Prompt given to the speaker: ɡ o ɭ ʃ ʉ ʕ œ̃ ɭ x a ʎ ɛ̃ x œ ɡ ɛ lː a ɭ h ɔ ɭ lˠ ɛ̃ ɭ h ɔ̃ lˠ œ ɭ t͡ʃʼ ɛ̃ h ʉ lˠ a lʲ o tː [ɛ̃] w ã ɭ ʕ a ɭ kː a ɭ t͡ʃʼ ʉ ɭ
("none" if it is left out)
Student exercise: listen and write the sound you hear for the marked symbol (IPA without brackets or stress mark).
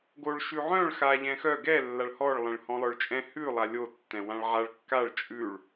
ɛ̃